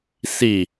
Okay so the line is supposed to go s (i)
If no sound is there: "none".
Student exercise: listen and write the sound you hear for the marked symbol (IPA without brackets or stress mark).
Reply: i